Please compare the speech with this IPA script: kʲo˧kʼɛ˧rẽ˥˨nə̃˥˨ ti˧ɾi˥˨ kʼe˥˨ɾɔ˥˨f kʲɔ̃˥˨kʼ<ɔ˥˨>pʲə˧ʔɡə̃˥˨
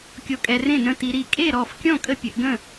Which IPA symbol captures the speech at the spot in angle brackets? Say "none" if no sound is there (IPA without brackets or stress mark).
ə˥˨